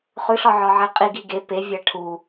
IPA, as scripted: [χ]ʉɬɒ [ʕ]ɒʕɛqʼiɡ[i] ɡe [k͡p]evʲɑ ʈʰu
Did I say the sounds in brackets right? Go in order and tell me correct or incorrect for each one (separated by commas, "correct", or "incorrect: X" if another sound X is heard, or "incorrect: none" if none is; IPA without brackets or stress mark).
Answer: correct, correct, correct, incorrect: p